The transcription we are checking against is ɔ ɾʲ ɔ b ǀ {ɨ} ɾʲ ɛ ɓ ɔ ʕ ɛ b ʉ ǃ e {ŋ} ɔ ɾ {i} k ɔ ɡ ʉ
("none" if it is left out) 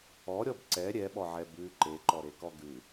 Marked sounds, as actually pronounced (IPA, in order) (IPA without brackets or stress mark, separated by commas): ɛ, ǃ, e